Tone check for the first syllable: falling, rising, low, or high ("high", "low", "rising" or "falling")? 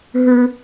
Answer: high